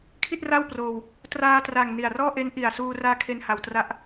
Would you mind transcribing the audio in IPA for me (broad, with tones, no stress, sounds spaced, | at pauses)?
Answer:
kʰ i˥˩ t̚ r a˥˩ w p r oː˧ w | t r aː˧ t r a˨˩ ŋ n i˨˩ a̯ r ɔː˥˩ ʔ e˦˥ n ʔ i˨˩ a̯ s uː˧ r aː˦˥ kʰ e˧ n h a˧ w t r a˥˩ ʔ